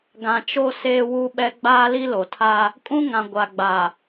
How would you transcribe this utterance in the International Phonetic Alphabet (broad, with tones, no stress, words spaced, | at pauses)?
ɡã˨t͡ʃo˦ seː˦wu˦ɓɛ˦ ɡ͡baː˦li˦lo˨tʰa˦ | kʼũ˦ŋã˨ ɡʷa˨ɡ͡ba˨